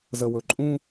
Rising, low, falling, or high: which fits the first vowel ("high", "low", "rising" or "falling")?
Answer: low